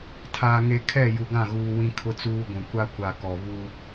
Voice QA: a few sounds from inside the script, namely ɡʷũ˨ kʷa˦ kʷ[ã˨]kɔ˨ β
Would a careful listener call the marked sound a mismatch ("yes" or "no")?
yes